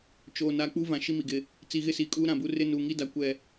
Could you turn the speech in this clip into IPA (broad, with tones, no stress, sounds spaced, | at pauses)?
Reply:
t͡ʃ oː˨ n aː˨ k͡p u˦ v ã˨ ʃ i˦ m i˨ ɡ ɪ˦ | t͡s i˨ ɣ ɪ˦ s iː˨ kʼ uː˦ ɾ ã˨ b u˦ r ɪ˦ n uː˨ ŋ i˦ d a˨ kʷ ɛ˨